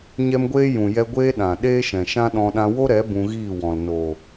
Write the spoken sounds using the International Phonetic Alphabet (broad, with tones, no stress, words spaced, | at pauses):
ɲɛ˦mɡʷeː˦ jũ˨jɛ˧ ɡʷeː˦ɗã˨ ɗeː˦ʃɛ̃˨ʃã˦ɗɔ̃˧ ɗã˧wo˦ɾɛ˨˦ bũ˧ɣiː˦˨wɔ̃˨l noː˨